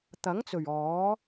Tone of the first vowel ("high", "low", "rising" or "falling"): rising